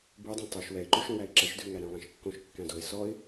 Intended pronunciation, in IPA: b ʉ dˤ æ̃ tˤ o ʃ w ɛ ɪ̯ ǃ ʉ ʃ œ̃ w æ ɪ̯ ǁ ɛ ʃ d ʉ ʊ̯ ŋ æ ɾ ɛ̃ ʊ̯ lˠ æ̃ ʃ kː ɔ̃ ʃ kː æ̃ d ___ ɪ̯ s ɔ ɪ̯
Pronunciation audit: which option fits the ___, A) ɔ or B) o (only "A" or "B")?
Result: B